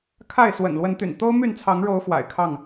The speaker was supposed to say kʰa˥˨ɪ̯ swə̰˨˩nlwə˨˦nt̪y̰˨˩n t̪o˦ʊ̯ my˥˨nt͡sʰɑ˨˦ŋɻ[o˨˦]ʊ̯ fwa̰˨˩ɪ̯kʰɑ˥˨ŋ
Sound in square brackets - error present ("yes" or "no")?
no